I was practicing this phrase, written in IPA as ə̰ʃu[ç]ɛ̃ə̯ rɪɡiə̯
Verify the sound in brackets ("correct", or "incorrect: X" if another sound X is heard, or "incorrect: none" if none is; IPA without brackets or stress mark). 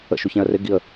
correct